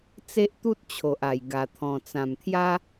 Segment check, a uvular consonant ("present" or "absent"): absent